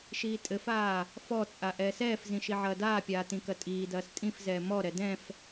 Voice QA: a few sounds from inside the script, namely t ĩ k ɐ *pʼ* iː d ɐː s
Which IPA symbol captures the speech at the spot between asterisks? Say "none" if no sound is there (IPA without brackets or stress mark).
tʼ